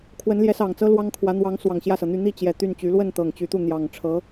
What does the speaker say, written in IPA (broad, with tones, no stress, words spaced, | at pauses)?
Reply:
kʰwə˧˥nljɛ˧˥sɑ˨˩ŋt͡sɤ˥ lwɑ˥ŋkʰwä˧˥ n̪wɑ˧˥ŋ swɑ˨˩ŋɕjä˥˩sɤ˩n̪y˥˧ n̪i˥˩t͡ɕjɛ˨˩ t̪y˥˩nt͡ɕy˧˥ lwə˥˩nt̪ɤ˨˩ŋ t͡ɕy˧˥t̪u˥˩ n̪jɑ˨˩ŋʈ͡ʂʰɤ˧˥